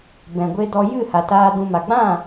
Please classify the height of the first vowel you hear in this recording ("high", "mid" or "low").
mid